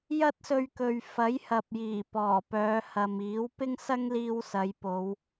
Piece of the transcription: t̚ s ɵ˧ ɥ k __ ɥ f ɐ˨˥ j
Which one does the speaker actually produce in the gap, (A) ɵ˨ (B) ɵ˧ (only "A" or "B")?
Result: A